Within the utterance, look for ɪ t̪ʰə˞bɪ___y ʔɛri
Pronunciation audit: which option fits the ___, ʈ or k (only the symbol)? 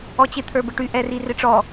ʈ